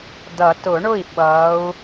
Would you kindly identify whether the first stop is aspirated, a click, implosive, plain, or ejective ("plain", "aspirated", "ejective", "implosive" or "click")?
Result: plain